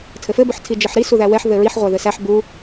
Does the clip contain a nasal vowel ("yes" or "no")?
no